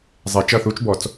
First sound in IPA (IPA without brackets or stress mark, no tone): zˤ